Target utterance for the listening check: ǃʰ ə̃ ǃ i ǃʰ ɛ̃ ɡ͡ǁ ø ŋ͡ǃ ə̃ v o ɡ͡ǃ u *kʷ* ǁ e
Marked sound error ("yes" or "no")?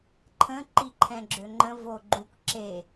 no